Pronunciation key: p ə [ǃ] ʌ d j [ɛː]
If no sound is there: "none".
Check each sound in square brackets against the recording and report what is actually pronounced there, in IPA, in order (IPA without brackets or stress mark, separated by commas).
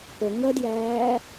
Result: ŋ, æː